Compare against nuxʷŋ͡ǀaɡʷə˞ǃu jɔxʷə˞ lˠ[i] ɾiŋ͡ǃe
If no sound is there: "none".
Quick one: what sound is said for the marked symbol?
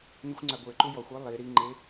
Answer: i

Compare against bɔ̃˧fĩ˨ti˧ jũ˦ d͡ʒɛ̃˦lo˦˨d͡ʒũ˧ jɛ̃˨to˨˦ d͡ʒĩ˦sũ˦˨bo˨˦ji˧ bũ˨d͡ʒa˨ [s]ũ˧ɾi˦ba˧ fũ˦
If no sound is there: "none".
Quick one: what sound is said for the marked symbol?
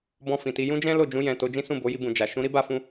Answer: ʃ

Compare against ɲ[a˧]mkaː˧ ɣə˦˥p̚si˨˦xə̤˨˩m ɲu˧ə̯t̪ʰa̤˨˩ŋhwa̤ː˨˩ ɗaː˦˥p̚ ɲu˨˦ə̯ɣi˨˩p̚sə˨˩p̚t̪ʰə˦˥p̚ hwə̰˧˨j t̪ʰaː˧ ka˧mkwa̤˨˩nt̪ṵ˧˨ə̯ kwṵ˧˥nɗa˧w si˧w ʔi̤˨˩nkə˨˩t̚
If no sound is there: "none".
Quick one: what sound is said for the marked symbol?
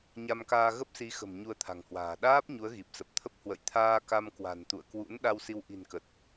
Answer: a˧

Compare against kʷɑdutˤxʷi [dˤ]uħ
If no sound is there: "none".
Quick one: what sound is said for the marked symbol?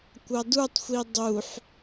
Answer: dˤ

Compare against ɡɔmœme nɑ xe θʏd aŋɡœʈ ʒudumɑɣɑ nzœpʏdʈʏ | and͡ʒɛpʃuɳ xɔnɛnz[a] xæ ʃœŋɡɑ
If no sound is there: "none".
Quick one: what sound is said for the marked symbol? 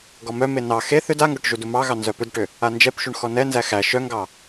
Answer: æ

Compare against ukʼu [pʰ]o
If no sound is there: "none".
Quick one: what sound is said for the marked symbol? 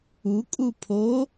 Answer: pʰ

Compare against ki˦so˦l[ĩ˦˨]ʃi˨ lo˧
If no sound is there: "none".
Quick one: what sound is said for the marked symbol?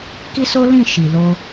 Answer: ĩ˦˨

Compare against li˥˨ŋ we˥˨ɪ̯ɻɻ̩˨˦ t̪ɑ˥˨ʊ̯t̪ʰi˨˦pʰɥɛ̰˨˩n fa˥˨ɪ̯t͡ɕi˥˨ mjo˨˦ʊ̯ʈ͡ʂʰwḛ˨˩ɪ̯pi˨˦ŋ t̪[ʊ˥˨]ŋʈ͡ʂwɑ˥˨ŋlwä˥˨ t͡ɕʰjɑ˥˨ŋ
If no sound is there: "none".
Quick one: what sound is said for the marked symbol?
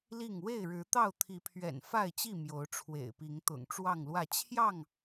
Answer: ʊ̰˨˩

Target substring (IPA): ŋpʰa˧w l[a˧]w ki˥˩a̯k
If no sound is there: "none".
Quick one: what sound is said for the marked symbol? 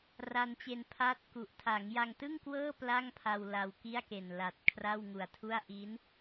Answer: a˧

